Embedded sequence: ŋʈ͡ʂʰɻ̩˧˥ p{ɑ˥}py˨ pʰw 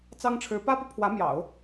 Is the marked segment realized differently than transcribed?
yes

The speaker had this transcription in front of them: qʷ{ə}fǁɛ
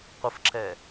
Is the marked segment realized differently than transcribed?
no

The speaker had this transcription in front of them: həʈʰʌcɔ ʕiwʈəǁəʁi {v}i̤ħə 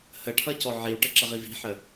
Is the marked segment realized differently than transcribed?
no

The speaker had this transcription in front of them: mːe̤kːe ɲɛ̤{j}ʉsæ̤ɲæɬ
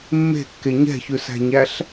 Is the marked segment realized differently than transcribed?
yes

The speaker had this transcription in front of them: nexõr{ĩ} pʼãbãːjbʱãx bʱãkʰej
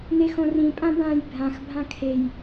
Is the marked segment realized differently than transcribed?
no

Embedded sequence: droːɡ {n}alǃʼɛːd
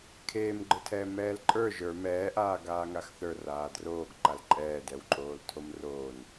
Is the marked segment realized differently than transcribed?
yes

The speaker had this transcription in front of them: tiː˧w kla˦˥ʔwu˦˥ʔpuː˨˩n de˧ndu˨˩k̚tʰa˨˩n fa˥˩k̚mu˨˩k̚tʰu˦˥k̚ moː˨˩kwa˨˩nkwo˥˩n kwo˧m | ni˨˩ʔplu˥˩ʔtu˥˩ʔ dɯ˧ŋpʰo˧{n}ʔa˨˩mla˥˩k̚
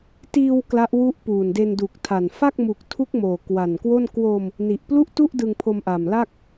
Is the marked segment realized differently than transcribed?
yes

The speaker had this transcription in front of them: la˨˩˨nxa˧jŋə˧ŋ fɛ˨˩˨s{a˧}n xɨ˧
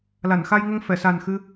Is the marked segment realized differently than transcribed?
yes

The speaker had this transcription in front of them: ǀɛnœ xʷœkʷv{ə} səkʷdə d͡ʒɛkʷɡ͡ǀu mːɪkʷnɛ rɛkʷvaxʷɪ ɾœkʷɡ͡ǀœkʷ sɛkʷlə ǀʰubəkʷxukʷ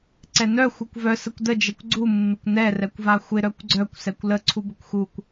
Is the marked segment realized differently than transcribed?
yes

